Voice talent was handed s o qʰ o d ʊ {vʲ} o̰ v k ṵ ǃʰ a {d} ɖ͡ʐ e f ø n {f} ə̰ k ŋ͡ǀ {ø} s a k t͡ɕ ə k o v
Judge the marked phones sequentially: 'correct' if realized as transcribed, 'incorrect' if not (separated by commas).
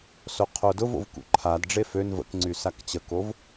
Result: incorrect, correct, incorrect, incorrect